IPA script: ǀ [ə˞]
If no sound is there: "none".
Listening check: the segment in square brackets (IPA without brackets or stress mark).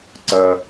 ɜ